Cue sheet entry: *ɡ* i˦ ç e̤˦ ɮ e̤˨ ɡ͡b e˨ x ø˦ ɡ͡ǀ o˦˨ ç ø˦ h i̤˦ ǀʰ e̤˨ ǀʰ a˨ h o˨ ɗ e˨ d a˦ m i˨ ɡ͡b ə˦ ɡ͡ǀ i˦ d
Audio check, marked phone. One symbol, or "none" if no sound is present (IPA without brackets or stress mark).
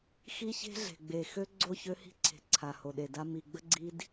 x